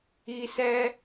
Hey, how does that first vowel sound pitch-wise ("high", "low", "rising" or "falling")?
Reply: high